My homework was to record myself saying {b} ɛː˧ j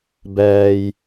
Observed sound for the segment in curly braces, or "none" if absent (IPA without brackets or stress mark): b